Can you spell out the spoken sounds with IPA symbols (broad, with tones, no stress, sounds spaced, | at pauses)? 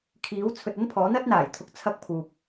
kʰ iː˨˥ w t͡sʰ ɵ˨ t̚ ɐ˥ n pʰ ɔː˨˥ n̪ ɐ˥ t̚ n̪ aː˨˩ j t̪ʰ ʊ˨˥ k̚ t͡sʰ ɐ˧ k̚ pʰ uː˨ p̚